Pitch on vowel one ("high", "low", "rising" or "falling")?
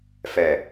low